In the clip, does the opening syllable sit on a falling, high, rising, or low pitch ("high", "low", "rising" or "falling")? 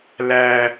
low